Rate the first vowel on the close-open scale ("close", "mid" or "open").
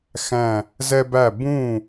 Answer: open